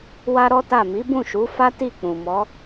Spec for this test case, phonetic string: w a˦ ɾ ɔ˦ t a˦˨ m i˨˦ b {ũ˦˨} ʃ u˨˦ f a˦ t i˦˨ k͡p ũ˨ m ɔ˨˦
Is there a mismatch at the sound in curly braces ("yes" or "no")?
no